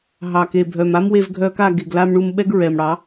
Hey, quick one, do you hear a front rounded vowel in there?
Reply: yes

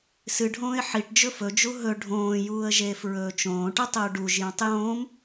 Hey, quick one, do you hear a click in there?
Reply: no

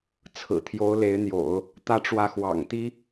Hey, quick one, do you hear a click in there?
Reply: no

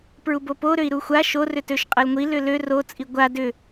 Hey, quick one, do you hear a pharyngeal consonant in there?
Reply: no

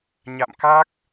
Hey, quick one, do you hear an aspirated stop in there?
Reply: no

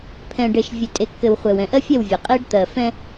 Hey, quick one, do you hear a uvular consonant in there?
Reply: yes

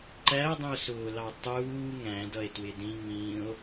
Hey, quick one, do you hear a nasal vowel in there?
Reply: yes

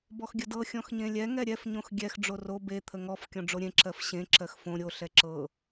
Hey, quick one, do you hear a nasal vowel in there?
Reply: yes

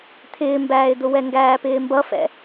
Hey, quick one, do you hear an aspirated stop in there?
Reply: yes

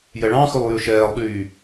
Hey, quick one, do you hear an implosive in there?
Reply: yes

